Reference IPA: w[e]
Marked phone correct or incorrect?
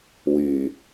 incorrect